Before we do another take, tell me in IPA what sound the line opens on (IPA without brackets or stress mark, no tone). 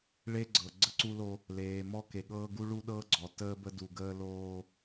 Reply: ɭ